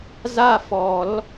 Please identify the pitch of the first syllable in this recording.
falling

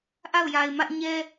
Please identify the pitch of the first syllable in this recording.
falling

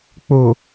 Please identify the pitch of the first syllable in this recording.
low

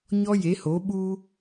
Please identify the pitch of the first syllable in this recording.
high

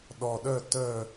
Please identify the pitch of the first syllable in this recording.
low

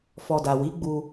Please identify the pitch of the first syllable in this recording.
low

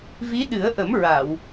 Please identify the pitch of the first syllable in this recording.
rising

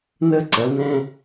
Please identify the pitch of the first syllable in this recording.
high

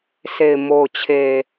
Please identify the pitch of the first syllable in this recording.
low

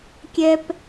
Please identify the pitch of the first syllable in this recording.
high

